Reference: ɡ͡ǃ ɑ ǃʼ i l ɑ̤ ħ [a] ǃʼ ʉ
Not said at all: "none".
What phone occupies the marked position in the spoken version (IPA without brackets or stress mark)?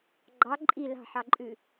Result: ɑ